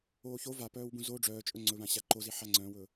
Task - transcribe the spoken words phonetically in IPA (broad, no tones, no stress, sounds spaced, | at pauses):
oː ç o v a p œː w b ũ z o ɖ͡ʐ œː t͡ʃʼ ɵ ŋ͡ǀ ɵ β ã ɕ a ǃ o z i ħ a ŋ͡ǀ œ̃ w ɵ